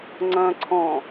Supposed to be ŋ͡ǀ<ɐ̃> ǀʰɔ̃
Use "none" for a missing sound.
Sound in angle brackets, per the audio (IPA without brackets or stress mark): ɐ̃